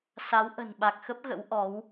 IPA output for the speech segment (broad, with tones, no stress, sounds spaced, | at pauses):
s a˨˦ w ʔ ə̤˨˩ n ɓ a˨˩ k̚ x ə˦˥ p̚ ɣ ə̰˧˥ w ʔ ɔ˨˦ w